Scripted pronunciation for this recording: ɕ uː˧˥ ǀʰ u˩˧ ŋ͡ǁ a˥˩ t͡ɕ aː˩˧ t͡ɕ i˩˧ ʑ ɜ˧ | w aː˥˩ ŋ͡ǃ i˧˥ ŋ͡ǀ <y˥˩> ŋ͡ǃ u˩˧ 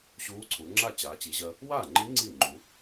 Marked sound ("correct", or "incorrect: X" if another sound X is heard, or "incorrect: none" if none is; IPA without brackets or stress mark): incorrect: i˥˩